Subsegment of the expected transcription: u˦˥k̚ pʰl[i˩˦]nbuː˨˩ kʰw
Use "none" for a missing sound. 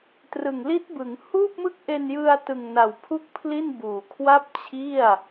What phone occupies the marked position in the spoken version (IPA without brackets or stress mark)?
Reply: i˥˩